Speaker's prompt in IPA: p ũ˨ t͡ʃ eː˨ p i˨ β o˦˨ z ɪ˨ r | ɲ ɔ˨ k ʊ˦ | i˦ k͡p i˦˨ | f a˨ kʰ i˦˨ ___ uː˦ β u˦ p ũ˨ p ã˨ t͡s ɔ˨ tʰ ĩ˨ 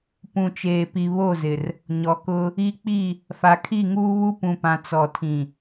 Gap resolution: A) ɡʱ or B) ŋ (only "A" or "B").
B